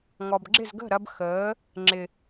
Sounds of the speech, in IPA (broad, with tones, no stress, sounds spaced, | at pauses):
ŋ ɔ˨ b ɡ͡ǁ ɪ˦˨ z ɡ ə̤˦˨ ɾ ɐ˧ b x əː˨˦ | ŋ͡ǁ ɪ˨